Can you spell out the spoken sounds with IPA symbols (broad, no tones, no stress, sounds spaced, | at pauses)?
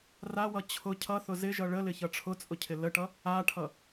r a w ʌ t͡ɕʰ ʊ cʰ ʌ θ ʊ z ɪ ʒ ʌ ɭ ə l ɪ ç ʌ ʈ͡ʂʰ ʊ t͡sʼ ʊ cʰ ɪ l ə ʈ ʌ | a ʈʰ ʌ